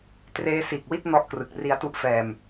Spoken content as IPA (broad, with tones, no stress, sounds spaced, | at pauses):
t r eː˦˥ s iː˨˩ k̚ w i˥˩ t̚ n ɔ˦˥ ʔ k r ɯ˨˩ k̚ r i˧ a̯ t u˦˥ ʔ f ɛː˧ m